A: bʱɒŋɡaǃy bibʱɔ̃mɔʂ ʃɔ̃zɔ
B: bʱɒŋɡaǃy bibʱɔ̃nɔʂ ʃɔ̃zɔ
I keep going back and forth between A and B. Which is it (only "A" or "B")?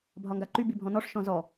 B